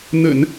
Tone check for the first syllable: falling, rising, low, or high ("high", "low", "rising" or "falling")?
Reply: low